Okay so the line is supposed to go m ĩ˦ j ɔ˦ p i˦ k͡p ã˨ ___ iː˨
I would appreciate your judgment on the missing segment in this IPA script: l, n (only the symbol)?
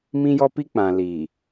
l